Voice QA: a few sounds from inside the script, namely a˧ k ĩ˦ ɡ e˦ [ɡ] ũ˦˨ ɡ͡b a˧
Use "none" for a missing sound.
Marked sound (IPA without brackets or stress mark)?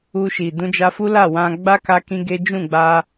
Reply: d͡ʒ